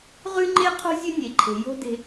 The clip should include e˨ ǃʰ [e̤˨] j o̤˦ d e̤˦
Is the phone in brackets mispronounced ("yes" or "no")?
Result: no